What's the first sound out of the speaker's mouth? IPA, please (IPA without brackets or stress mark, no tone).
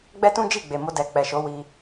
ɡ͡b